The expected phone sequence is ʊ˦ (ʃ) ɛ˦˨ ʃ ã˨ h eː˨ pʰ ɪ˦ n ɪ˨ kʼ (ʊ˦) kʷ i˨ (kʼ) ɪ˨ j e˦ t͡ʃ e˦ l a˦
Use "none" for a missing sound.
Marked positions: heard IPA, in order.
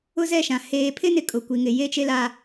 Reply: z, ʊ˨, ŋ

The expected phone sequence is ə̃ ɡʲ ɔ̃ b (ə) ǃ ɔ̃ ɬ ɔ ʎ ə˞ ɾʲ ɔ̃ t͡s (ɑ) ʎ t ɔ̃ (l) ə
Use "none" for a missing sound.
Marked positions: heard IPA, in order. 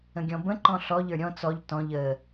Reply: ə̃, ɔ, ʎ

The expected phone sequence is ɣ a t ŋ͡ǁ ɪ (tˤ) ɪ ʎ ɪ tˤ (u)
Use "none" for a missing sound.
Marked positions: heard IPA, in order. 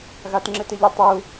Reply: t, u

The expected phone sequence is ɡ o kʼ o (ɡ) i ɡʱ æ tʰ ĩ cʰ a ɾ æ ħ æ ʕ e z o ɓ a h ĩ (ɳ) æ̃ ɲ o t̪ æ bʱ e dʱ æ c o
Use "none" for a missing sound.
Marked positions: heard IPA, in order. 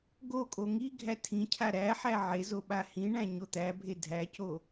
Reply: ŋ, ɳ

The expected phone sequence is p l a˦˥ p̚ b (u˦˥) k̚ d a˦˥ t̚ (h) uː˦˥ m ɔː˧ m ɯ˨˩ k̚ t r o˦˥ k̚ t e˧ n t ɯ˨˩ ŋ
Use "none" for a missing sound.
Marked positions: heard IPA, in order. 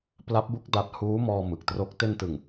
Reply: u˦˥, h

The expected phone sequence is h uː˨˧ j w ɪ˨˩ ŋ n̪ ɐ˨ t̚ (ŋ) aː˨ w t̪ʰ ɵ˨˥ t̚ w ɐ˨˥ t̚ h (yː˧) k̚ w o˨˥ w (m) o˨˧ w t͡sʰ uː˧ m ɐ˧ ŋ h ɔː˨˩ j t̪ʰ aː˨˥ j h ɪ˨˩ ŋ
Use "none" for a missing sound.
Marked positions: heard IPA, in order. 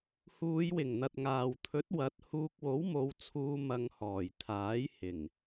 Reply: ŋ, uː˧, m

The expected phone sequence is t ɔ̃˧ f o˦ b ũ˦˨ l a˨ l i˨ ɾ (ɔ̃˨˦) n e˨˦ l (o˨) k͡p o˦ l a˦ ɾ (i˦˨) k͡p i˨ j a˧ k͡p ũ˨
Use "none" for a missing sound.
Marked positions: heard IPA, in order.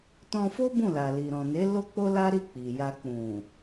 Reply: ɔ̃˨, o˦, i˦˨

